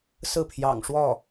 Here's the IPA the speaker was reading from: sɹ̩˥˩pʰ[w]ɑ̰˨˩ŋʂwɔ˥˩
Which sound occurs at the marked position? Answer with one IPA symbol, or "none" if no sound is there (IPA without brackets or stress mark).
j